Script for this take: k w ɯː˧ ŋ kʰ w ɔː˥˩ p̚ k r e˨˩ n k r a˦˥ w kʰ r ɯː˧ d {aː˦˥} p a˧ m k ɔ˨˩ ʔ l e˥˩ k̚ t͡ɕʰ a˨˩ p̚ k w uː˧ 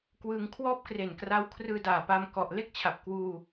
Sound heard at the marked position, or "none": aː˨˩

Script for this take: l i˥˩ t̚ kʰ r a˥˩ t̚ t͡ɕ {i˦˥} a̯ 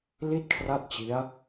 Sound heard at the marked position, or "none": i˦˥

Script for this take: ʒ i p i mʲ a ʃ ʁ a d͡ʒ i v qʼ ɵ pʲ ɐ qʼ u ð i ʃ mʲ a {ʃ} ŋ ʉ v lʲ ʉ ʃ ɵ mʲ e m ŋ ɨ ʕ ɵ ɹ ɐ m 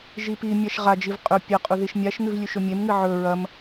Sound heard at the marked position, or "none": ʃ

